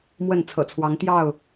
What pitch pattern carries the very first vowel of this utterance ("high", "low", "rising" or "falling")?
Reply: falling